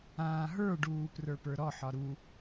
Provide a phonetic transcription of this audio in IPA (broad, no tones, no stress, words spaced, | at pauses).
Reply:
ãːɦə˞ɖuː prə˞pə˞ɾɔħɒ ɾu